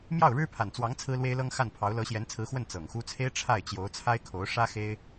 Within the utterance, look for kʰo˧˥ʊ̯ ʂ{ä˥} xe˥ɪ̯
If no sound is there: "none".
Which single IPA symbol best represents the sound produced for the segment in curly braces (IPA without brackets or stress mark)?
ä˥